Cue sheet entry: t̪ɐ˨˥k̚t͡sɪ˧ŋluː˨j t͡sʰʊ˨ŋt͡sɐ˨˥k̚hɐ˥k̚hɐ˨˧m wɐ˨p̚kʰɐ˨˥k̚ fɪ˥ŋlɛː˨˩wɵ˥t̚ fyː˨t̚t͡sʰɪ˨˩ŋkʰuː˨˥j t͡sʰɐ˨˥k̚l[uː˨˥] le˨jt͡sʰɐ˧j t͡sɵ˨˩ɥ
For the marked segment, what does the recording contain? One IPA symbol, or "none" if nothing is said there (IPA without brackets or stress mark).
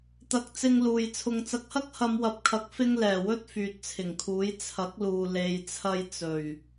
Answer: uː˨